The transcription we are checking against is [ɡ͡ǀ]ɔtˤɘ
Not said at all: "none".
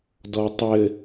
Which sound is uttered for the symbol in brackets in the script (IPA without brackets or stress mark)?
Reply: d